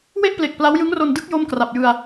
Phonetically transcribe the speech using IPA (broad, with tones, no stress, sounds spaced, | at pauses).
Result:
w e˥˩ ʔ p l e˨˩ k̚ p l a˦˥ w j ɯ˦˥ ŋ r o˧ n d ɯ˦˥ k̚ j o˥˩ m k r a˨˩ p̚ j ɯ˧ a̯